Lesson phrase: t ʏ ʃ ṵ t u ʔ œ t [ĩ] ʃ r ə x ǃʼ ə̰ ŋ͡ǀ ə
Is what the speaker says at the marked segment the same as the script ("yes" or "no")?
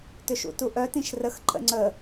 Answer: yes